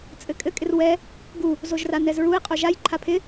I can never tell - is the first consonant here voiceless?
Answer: yes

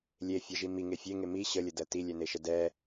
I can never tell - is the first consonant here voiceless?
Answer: no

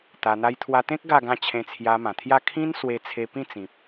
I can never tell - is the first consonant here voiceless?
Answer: yes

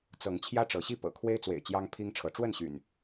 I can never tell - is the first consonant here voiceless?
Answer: yes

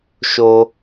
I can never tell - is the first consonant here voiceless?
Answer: yes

